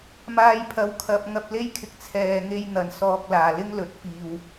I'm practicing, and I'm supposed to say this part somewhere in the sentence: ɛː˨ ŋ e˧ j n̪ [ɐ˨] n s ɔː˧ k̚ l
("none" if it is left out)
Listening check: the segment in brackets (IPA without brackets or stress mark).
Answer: ɐ˨